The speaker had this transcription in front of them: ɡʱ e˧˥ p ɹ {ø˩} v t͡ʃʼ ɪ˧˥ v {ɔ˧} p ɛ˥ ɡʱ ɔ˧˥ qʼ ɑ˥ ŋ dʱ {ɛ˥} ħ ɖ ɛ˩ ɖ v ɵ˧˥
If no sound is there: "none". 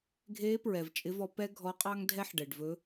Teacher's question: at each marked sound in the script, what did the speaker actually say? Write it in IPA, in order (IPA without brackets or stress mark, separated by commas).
ɛ˩, ɔ˧, ɛ˥